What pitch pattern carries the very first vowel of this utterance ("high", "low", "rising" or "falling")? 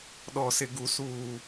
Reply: low